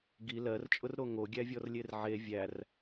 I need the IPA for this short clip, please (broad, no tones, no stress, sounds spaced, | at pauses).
ɡ i l ɜ r t͡ʃʼ ʊ r ɾ o ŋ o ɡʲ æ vʲ ɔ r lʲ e r ʕ e vʲ æ r